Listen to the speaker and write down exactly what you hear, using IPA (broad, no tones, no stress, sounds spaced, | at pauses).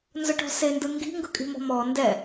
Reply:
n z ʊ ʈ ɔ̤ s e n d ɯ ŋ ɡ i̤ ŋ ɡ ɯ kʼ i̤ m ɔ̤ m ɔ n d ɛ